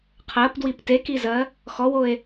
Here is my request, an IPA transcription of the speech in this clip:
qʰ ɜ p d w i p t e k i z ɜ | x ɔ w o e̯

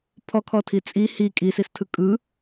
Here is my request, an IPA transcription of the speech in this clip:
pʰ ɔ kʰ ɔ tʰ i t͡sʼ i h i kʼ i s i s tʰ ɯ kʼ ɯ

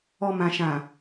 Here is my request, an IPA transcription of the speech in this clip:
ɔ˨ m ã˨ ʃ ã˨

